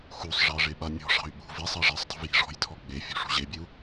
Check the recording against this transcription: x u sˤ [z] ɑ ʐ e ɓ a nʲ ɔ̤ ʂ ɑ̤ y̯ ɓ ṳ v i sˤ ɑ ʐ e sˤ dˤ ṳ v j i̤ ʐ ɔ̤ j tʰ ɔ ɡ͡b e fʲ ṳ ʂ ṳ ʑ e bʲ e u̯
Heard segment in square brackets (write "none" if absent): ʐ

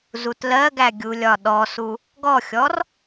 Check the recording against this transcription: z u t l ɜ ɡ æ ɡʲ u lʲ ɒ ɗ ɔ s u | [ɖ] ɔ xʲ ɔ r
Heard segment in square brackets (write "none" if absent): ɡ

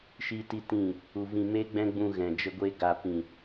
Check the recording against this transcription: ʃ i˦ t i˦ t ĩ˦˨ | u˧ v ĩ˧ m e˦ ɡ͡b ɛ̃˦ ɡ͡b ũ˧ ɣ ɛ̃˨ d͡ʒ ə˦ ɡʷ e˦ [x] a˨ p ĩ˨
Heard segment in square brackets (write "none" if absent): ɡ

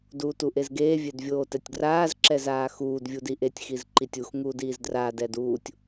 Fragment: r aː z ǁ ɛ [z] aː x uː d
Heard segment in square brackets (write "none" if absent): z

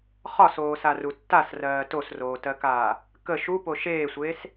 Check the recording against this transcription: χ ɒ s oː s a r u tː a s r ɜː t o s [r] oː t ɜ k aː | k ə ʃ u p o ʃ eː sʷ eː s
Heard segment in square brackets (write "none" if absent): r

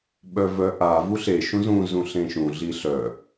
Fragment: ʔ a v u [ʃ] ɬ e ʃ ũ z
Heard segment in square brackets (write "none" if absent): none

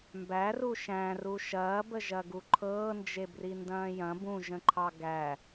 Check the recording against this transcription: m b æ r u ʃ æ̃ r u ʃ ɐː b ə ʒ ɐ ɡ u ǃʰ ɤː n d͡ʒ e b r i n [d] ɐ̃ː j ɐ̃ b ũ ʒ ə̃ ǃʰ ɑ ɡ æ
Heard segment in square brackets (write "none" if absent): d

